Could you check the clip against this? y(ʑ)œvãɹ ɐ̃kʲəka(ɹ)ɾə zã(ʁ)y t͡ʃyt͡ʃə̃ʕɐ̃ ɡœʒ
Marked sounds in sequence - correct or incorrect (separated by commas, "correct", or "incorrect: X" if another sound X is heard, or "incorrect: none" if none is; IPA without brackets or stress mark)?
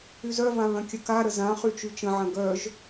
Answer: incorrect: z, incorrect: none, incorrect: χ